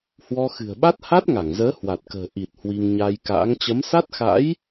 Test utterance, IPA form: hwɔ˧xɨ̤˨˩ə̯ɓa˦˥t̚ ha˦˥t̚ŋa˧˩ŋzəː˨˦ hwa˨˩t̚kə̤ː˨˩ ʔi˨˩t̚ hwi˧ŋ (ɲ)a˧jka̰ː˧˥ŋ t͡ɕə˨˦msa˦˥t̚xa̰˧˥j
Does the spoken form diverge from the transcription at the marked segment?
no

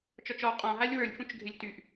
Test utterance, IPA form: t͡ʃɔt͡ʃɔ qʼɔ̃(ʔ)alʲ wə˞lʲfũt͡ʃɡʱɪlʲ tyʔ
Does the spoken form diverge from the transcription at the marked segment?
yes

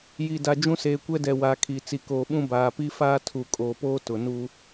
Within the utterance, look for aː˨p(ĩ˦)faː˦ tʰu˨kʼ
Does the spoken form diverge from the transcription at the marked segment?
yes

